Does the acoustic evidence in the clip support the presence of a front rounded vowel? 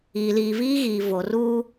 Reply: no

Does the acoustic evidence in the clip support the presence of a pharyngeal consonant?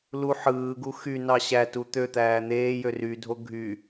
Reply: yes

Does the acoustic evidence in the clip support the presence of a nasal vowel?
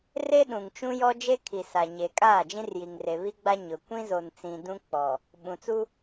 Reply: yes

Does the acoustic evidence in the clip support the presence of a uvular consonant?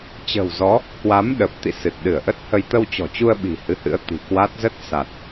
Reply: no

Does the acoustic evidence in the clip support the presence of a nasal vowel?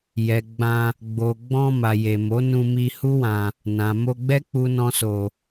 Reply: yes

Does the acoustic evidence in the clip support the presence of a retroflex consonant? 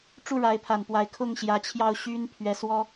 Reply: yes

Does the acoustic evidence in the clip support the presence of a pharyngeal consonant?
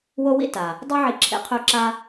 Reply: yes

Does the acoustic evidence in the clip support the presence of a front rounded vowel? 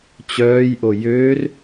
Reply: yes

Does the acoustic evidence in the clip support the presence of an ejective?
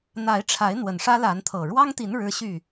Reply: no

